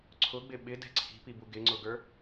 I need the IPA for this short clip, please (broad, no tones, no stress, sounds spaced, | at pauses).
ǀʰ ʊ ɡ͡b ɪ ɓ ɪ d ɛ̤ ǀʰ i̤ p i b u ɡ ɪ ŋ͡ǀ ʊ ɡ ə˞